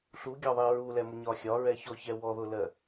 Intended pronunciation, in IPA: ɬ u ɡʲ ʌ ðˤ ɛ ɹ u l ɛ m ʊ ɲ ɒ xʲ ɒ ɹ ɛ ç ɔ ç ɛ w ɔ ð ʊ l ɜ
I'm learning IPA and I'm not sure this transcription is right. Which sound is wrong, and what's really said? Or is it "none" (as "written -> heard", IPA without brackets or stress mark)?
ʌ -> ɒ